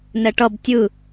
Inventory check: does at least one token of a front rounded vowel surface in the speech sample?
no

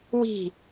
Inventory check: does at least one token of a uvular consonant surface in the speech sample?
no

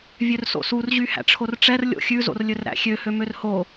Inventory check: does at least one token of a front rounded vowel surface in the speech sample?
yes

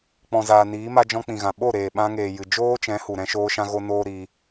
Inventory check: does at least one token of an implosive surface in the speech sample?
yes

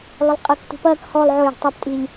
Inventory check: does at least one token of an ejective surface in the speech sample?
yes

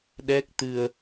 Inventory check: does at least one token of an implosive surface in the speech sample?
yes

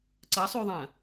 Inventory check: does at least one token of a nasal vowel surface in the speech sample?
yes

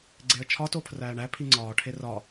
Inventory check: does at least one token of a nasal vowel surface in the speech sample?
no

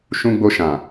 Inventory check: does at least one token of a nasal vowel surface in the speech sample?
yes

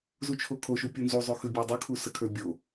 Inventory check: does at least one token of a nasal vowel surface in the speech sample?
no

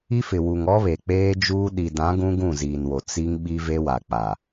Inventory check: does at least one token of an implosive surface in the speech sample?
yes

